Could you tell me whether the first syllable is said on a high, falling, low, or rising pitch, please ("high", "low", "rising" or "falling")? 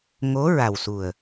rising